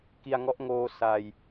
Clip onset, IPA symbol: k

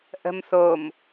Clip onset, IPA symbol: ʔ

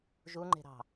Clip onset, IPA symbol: ʒ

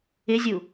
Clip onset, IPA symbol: ɪ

